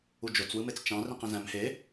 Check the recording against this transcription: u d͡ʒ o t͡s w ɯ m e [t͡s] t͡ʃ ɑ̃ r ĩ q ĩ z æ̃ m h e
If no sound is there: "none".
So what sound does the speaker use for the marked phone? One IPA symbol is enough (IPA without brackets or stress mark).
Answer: t͡s